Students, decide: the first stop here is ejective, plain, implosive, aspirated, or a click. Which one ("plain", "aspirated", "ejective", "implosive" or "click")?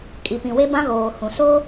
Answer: ejective